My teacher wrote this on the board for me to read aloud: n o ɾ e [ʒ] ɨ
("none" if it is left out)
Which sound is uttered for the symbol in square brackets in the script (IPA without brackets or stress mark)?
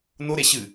ɕ